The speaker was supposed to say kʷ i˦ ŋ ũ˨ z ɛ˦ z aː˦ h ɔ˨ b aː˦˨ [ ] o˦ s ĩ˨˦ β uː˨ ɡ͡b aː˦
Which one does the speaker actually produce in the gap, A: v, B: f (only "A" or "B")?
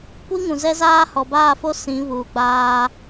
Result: B